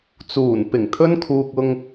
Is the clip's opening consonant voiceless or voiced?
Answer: voiceless